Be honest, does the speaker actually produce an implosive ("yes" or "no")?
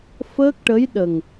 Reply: yes